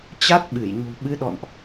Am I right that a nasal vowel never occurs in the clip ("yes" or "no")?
yes